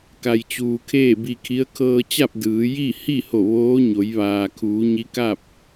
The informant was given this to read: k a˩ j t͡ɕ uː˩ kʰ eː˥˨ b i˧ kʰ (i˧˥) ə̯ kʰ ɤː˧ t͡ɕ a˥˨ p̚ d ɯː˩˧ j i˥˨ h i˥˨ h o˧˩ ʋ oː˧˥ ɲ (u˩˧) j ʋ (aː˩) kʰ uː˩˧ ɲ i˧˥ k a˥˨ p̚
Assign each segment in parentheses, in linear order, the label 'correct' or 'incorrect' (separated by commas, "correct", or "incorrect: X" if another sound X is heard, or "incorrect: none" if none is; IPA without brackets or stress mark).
correct, incorrect: o˩˧, correct